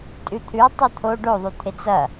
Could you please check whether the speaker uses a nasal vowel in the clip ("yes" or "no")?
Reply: no